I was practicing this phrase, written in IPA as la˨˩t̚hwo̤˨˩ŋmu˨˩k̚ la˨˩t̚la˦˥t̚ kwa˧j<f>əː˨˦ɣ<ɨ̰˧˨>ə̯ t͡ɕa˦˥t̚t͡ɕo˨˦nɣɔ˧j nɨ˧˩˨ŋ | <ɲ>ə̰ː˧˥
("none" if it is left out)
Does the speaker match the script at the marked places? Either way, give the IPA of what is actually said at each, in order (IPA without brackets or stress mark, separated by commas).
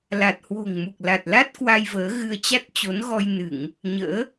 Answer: v, ɨ˧, ɲ